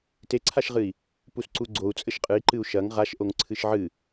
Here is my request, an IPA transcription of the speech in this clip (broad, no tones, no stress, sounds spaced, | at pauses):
t e ǀʰ a ʃ ʁ ɨ i̯ | p u s ǀ u ɡ͡ǀ o u̯ t͡sʼ ɘ ʃ qʼ ɨ i̯ ǃ ɨ u̯ ʃ ɐ ŋ ʁ a ʃ ʔ o ŋ ǀʰ ɨ ʃ ʕ ɨ